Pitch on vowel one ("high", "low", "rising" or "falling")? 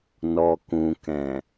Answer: low